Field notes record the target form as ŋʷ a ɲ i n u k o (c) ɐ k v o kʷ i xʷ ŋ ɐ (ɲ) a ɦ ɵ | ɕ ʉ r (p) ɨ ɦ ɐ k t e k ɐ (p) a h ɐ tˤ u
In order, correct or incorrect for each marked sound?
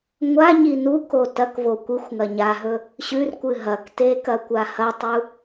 incorrect, correct, incorrect, incorrect

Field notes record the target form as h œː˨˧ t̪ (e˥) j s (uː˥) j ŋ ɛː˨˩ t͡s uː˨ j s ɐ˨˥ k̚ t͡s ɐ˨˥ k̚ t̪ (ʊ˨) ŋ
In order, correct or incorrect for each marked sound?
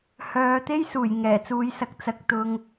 correct, incorrect, incorrect

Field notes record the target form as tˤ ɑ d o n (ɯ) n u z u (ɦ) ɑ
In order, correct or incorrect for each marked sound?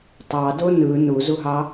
correct, correct

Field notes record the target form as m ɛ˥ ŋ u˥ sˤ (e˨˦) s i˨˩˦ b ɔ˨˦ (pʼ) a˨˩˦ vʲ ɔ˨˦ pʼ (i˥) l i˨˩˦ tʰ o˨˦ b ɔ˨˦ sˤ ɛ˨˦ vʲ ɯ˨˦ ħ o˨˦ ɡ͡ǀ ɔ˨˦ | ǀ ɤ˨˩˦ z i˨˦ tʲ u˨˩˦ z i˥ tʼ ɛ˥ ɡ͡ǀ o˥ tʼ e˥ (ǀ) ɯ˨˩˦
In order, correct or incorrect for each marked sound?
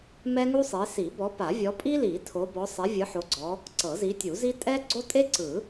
correct, incorrect, correct, correct

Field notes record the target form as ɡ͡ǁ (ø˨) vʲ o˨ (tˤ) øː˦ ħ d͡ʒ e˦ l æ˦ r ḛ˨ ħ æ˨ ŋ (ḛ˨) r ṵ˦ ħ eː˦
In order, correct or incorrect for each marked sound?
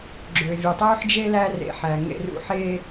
correct, correct, incorrect

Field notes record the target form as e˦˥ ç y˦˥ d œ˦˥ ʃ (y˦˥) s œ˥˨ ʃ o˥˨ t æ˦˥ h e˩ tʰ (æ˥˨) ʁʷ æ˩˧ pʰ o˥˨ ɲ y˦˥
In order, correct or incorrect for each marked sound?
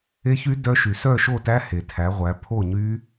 incorrect, incorrect

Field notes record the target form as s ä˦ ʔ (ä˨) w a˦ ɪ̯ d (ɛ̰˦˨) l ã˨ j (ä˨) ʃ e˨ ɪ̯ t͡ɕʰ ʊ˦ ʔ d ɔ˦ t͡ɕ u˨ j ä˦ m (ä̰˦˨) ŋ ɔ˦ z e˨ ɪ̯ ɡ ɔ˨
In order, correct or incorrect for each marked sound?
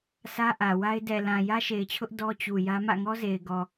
correct, incorrect, incorrect, correct

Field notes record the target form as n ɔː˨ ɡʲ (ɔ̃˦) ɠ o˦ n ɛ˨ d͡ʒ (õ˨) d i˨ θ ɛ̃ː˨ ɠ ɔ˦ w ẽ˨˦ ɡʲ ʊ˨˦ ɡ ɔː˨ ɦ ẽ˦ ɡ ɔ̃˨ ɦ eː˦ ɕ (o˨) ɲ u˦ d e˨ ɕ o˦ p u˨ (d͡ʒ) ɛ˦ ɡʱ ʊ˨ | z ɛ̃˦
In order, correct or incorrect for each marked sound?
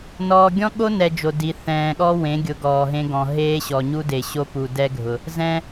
correct, incorrect, incorrect, incorrect

